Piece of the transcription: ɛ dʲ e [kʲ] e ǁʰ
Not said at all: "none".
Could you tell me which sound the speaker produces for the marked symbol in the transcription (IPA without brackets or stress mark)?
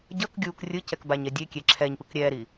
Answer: kʲ